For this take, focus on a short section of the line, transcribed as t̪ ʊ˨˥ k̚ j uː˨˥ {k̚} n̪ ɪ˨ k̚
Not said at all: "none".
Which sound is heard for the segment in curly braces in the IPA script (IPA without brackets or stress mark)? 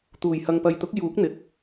k̚